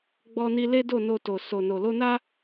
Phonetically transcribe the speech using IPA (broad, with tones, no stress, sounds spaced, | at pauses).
ɡ͡b ɔ˧ n i˧ l e˦ d o˦˨ n o˧ t o˨ s o˨ n o˨ l o˧ n a˦